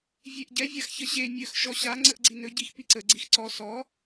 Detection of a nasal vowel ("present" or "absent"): absent